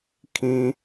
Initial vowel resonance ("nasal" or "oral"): nasal